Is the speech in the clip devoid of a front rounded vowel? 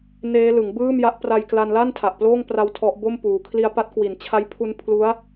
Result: yes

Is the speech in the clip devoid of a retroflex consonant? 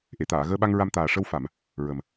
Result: no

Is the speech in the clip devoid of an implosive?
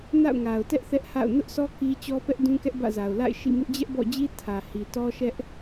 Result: yes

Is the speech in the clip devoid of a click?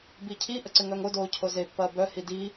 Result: no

